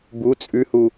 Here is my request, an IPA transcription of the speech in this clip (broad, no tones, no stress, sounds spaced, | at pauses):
b u t͡sʼ ʉ h u